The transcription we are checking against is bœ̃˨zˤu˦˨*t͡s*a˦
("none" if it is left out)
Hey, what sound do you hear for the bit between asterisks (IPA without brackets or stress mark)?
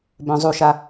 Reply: ʃ